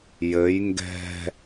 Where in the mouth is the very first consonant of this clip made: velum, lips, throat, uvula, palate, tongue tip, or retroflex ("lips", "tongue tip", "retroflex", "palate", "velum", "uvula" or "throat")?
palate